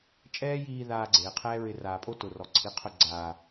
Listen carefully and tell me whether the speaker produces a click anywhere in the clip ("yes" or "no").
yes